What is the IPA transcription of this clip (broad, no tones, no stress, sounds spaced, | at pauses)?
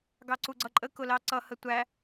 ɡ ɑ ǀ u ɡ͡ǀ ʌ ǃʼ ə k ʊ l ɑ ǀ ʌ h ə tʷ æ